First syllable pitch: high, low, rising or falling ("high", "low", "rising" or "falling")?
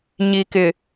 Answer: low